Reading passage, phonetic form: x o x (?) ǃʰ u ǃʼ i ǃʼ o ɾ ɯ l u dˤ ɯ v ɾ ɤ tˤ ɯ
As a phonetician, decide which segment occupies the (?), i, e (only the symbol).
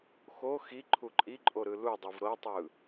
i